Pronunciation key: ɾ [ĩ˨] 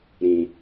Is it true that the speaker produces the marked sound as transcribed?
yes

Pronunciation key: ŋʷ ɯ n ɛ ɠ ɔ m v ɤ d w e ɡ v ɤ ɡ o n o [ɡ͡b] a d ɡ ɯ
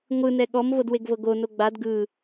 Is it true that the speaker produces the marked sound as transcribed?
yes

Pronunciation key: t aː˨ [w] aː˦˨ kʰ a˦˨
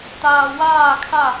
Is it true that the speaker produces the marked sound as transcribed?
yes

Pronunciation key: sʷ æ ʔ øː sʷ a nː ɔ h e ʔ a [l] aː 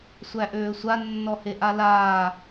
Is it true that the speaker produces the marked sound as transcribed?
yes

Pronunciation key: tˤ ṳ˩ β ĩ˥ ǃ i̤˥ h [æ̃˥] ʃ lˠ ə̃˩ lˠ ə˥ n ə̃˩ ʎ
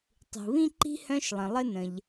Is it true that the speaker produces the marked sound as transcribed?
no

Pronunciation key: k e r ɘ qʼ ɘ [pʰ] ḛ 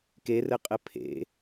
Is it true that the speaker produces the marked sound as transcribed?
yes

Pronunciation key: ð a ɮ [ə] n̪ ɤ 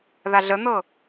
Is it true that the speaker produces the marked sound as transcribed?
yes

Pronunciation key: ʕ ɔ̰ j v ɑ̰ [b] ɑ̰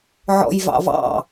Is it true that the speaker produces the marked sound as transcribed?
no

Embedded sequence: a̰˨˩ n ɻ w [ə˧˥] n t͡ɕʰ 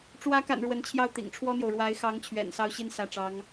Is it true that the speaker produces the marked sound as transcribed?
yes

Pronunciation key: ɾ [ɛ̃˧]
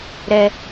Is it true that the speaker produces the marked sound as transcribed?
no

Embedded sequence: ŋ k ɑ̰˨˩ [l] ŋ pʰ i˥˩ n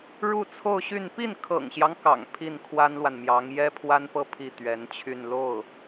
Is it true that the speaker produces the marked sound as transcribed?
no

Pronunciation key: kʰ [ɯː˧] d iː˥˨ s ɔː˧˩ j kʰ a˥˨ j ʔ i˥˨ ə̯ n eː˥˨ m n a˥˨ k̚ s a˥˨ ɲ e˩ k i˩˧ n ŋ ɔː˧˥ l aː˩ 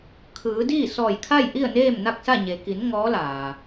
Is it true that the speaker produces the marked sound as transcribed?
no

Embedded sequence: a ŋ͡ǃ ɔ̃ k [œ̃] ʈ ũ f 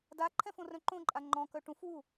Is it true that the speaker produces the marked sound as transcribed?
no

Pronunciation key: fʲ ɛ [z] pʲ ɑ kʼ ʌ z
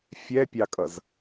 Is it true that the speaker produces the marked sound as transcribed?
no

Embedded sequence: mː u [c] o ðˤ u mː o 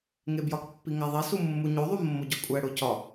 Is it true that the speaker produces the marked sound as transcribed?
no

